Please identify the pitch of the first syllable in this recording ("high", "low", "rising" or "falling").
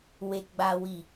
low